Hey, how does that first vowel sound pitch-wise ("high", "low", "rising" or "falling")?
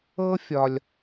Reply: high